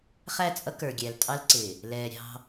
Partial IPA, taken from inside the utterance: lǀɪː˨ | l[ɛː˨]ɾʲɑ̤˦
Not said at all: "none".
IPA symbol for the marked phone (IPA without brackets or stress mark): ɛː˨